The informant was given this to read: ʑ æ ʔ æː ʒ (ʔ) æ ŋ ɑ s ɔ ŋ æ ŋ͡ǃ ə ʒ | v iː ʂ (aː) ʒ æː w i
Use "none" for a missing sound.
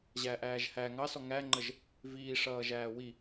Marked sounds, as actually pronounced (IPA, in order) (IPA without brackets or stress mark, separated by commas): h, ʌː